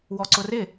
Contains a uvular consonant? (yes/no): no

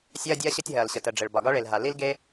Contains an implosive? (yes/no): no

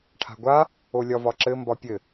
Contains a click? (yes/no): yes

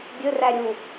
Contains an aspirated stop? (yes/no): no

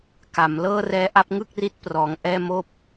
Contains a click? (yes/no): no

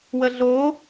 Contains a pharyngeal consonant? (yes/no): no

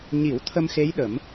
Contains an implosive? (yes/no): yes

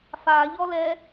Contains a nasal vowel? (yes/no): no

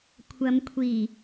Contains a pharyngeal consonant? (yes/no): no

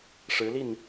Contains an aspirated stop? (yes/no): no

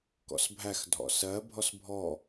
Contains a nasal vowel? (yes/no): no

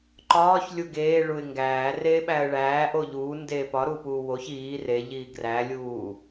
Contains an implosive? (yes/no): yes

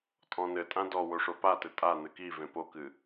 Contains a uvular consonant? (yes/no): no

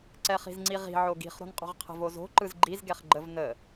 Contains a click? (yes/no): yes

